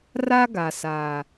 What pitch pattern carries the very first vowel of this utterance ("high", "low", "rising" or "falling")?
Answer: high